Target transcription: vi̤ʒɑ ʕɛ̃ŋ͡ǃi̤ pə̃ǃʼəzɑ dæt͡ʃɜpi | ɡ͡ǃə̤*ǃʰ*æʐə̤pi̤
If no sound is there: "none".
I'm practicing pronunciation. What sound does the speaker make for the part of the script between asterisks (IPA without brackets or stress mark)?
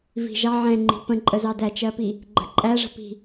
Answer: ǃʼ